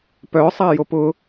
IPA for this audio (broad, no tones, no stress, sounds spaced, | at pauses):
p œ sˤ a j o p ʊ